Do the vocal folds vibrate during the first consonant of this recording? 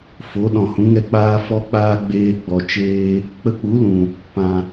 no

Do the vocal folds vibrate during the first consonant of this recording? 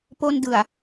no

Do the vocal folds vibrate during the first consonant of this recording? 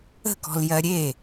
no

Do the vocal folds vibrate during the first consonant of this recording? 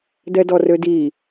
yes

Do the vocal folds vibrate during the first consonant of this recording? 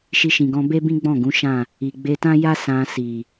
no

